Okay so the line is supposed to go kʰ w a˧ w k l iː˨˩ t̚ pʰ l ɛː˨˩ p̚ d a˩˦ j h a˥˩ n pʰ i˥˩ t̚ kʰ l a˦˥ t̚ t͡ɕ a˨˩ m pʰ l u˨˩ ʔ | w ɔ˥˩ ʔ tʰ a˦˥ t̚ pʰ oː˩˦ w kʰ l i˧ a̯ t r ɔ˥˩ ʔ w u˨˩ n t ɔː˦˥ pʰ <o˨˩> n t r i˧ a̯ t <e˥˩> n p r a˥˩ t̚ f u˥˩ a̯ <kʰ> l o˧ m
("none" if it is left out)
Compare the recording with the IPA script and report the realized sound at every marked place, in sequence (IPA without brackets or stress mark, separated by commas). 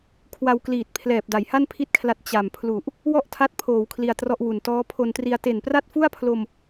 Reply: o˧, e˨˩, pʰ